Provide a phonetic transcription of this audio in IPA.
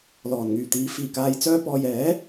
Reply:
l ɔː˨˩ n ŋ yː˨˩ t̪ iː˨˥ f iː˨˩ k aː˨ j t͡s œː˧ p ɔː˨ j ɛː˨˥

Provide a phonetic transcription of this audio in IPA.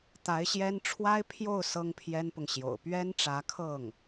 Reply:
t̪ a˧˥ ɪ̯ ɕ j ɛ˥ n ʈ͡ʂʰ w a˥ ɪ̯ pʰ j o˥˩ ʊ̯ s ɤ˥ ŋ pʰ j ɛ˥ n p ʊ˨ ŋ ɕ j o̰˨˩ ʊ̯ p ɥ ɛ˥ n ʈ͡ʂ ä˧˥ kʰ ɤ˥˩ ŋ

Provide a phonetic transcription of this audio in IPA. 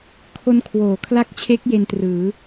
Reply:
kʰ o˧ n kʰ w oː˩˦ kʰ l a˦˥ k̚ t͡ɕʰ e˦˥ k̚ j e˧ n t r ɯː˩˦

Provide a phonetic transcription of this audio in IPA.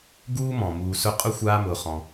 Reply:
ɡ uː˥ m ɔ̃˩ m uː˨ s ʊ˦ qʼ ʊ˥ xʷ aː˦ m ʊː˨ χ ɔ̃˨

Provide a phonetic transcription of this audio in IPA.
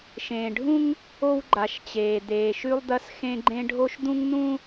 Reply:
ʃ ẽː˨ ɖʱ ũ˦ ŋ | o˦ w ɡ͡ǃ a˨ ʃ t͡ɕ eː˨ d̪ eː˨ ʃ ʉ˦ lˠ d̪ ɐ˦ s x ẽ˦ ɡ͡ǃ ẽ˦ ɖʱ o˦ ʃ d̪ ũ˦ ŋ n̪ ũ˦

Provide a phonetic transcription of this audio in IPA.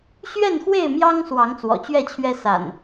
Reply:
ɕ ɥ ɛ˥˨ n x w e˥˨ ɪ̯ m j ɑ˦ ŋ s w ɑ˨˦ ŋ t͡s w ɔ̰˨˩ t͡ɕ ɥ ɛ˥˨ t͡ɕʰ ɥ ɛ˦ s a̰˨˩ n

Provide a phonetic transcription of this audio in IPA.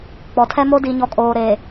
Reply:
k͡p ɔ˨ tʰ ɛ˦ m o˦ d i˨ ɲ ɔ˨ kʼ oː˨ ɾ e˨

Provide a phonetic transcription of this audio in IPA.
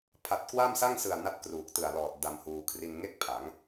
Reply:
pʰ a˨˩ t̚ k w a˥˩ m s a˥˩ ŋ s ɯ˨˩ a̯ n a˥˩ t̚ k r uː˨˩ k̚ t ɯ˨˩ a̯ l ɔː˨˩ t̚ d a˧ m h uː˧ kʰ r i˧ n ŋ e˥˩ k̚ pʰ a˩˦ ŋ

